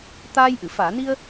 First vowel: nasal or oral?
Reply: oral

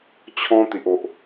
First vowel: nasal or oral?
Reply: nasal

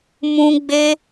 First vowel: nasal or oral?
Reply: nasal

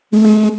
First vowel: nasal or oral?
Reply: nasal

